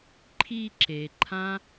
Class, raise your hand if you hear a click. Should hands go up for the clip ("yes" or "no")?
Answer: yes